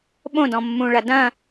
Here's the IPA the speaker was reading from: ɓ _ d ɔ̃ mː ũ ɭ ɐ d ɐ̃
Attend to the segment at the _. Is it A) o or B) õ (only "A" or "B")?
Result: B